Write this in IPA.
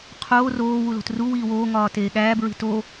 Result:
qʰ oː r oː w u l o̤ t r u w iː w oː ŋ ɒː t eː ɠ æː b ɹ i̤ t o

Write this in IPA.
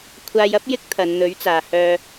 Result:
kʷʰ aː˨ j ɐ˨˥ p̚ j ɪ˥ k̚ t̪ʰ ɐ˨˧ n n̪ ɵ˨˥ ɥ t͡s aː˨ h œː˧

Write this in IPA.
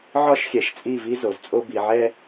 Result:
ʕ ɒ˦ ʃ xʲ ɛ˨ ʃ t͡sʼ i˦˨ v i˦ z o˨ z t͡sʼ o˦ b i˨ ʕ ɛ˦

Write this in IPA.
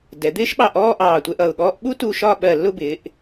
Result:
d ɛ˩˧ d̪ ɪː˥ ʃ ɓ ɑ˧ ʔ ɔː˥˧ ʔ ɑː˧˩ tʷ ɛ˥˧ ʔ ʌ˧˩ ʊ̯ ɠ ɔː˥ ʔ ɓ u˥ t u˧ ʃ ɒ˥˧ ɓ ɜ˧˩ lː ʊ˥˧ b ɪː˩˧ ʔ

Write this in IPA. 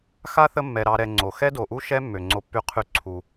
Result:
x a˥ θ ə˦ mː ɛ˨ ɾ ɑ˨ ɾ ɛ˨ ŋ͡ǀ o˩ x ɛ˥ d o˨ ʔ u˥ ʃ ɛ˦ mː ø˩ ŋ͡ǀ o˨ pː y˨ qʰ y˨ ǀʰ u˩

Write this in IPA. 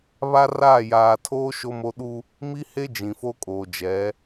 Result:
β a˦ r aː˦˨ j aː˨ tʰ oː˦ ʃ o˦ m o˦ ɗ u˦ | m i˦ h e˦ d͡ʒ ĩ˨ f o˦ kʼ oː˨ d͡ʒ ɛ˨˦

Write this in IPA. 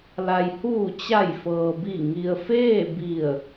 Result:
l a˩ j h uː˧˩ t͡ɕ a˧˩ j f ɤː˩ b i˧˩ ŋ i˩ ə̯ f eː˥˨ b i˧˩ ə̯

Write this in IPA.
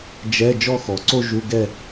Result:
d͡ʒ ɛ˧˥˧ d͡ʒ ɔ˥˧ x ɔ˩˧ ǀ o˥˧ ʒ u˧˥˧ ɡ ɛ˥˧

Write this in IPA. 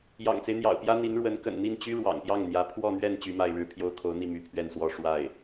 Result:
j ɑ̰˨˩ ŋ t͡s e˦ ɪ̯ n̪ j ɑ̰˨˩ ʊ̯ p j ä˥ n̪ i˧˥ n ɻ w ə˧˥ n k ə̰˨˩ n n̪ i˥˩ n t͡ɕ y˥ ɻ w ɑ̰˨˩ ŋ p j ɑ˥˩ ŋ n̪ j ä˧˥ pʰ w ɔ˥˧ n̪ ɥ ɛ˥˩ n t͡ɕ y˥ m a˥˧ ɪ̯ ɻ ɻ̩˥˩ pʰ j o˥ ʊ̯ kʰ o˧˥ ʊ̯ n̪ i˥˩ m y˧˥ pʰ ɥ ɛ˥˧ n s w ɔ˥˧ ʂ w a˥˩ ɪ̯

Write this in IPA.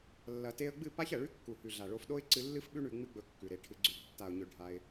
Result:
lː ɐ˨ t e˧ ə̯ ɡ͡b ɨ˦˨ p a˦ ç ɐ˨ ɭ ʉ˦ kː u˨ h ʉ˨ ɮ a˨ ɭ o˧ f ɗ o˦ ɪ̯ ǀ ɨ˧ lː ɨ˦ f ɓ ʉ˦ ɳ ʉ˧ ŋ͡m ɨ˦ ɡ͡b ɵ˧ kː ʉ˨ ɾ e˧ ʈʰ ɨ˧ ɡ͡ǀ ʉ˧ ɡ tː a˨ ʊ̯ ɲ ɵ˨ ɖʱ a˧ ɪ̯

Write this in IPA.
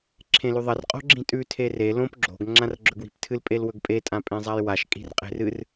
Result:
ǁʰ ẽ l ʉ ðˤ ɐ r qʼ o̤ ɡ͡ǁ ĩ tʼ ʉ tʰ e r e l õ p ɡ͡ǁ o̤ ɡ ŋ͡ǁ ã r ɡ͡ǁ ɵ ɡ w i̤ p tʰ ɨ l pʼ e l w ɵ ɡ pʼ e tʼ ã pʼ ẽ zˤ a j w a ʃ kʼ i̤ r qʼ e̤ r ɨ r

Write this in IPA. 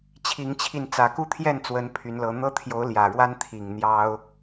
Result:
t͡ɕʰ i˨˦ ŋ t͡ɕʰ i˧ n t͡s ä˨˩ k u˥˨ t̪ʰ j ɛ˥˨ n t͡s w ə˨˦ n pʰ y˨˦ n l ɤ˨˦ n̪ ɤ˦ t̪ʰ j o˨˦ ʊ̯ l j ä˨˩ ɻ w a˦ n t̪ʰ i˨˩ ŋ n̪ j ɑ˦ ʊ̯

